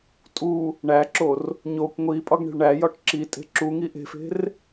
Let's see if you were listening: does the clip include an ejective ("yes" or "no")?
yes